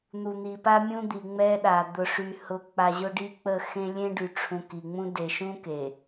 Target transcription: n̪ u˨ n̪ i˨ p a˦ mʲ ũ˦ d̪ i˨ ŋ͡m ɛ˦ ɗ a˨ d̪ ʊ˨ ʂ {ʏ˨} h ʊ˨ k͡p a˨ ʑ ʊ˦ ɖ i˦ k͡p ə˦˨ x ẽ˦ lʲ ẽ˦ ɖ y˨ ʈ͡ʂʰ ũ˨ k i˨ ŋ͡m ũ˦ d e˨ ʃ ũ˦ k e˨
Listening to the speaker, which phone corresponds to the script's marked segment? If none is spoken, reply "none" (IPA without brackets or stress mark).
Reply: y˨